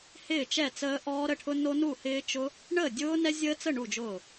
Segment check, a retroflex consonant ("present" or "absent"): present